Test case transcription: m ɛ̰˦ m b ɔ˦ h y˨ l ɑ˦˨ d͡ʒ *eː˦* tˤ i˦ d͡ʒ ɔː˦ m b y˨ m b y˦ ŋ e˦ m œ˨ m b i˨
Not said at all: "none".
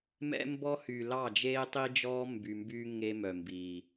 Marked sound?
eː˦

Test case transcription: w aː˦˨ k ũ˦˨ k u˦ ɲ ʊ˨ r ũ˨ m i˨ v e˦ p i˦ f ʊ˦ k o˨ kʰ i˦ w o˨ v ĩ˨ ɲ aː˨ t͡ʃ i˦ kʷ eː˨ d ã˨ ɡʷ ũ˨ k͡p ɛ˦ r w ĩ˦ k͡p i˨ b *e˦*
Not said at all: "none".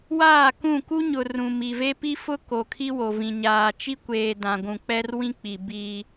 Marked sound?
i˦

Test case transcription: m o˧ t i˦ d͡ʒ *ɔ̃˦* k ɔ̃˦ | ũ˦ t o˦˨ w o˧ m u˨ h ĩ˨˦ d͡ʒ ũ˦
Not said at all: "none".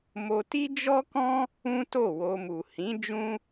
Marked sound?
ɔ˦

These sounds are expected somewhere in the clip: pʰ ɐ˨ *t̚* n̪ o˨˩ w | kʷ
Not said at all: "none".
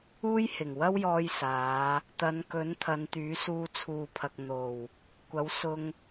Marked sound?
k̚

